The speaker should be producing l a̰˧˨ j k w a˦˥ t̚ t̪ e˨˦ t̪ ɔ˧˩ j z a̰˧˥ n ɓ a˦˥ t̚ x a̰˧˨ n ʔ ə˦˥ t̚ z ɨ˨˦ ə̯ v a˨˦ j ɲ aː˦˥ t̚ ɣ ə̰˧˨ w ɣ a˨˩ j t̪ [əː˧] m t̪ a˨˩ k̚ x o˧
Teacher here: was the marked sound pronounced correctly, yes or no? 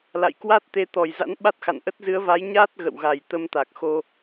no